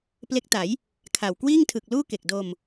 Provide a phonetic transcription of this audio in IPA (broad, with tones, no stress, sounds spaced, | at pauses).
p l e˦˥ k̚ t a˩˦ j | kʰ a˨˩ w k w iː˥˩ ŋ tʰ ɯ˨˩ k̚ l uː˥˩ k e˨˩ k̚ d o˧ m